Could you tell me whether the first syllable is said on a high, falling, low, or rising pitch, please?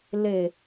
low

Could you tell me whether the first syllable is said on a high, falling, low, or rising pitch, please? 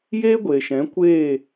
high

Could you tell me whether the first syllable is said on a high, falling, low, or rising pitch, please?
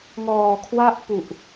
low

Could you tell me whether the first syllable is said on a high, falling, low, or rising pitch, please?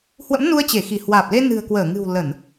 rising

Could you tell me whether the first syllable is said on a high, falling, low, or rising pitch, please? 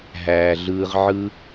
low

